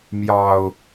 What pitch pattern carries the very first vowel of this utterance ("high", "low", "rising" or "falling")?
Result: low